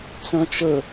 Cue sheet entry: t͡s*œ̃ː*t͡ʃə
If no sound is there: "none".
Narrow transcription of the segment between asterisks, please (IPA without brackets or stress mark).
œ̃